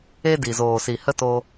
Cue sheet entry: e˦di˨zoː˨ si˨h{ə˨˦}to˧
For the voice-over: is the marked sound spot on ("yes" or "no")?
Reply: no